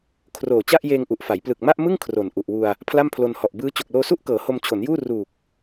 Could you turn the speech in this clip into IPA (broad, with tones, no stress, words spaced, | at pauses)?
kʰroː˨˩ t͡ɕa˥˩ʔjeː˧ŋʔu˨˩ʔfa˩˦j plɯ˨˩k̚ma˥˩ʔmɯ˥˩ŋ kʰro˨˩nʔu˨˩ʔwu˧a̯ | pʰla˥˩mpʰlo˧nhɔ˨˩ʔ bɯː˦˥ t͡ɕo˨˩k̚loː˧su˥˩ʔkɤː˩˦ ho˧mt͡ɕʰo˩˦njuː˥˩ ruː˨˩k̚